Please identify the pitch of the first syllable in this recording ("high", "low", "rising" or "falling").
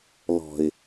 low